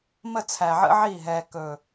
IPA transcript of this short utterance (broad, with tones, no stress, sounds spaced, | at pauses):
m ə˦˨ t͡sʰ æ˨ ʕ ə̰˦ ʕ i˦˨ ɦ ɛː˨ k ɵ˨